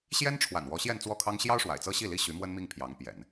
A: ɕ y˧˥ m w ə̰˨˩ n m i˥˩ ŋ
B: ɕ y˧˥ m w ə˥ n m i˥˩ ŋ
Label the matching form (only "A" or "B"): B